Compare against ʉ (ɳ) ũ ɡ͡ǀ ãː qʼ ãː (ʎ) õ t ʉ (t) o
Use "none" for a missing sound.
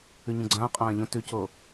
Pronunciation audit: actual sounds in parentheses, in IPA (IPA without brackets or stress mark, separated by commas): ɲ, ʎ, c